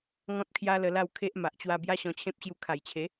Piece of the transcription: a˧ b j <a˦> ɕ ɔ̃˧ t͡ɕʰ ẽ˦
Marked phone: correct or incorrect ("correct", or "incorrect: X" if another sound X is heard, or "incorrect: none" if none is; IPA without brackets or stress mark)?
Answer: correct